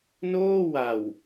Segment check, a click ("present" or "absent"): absent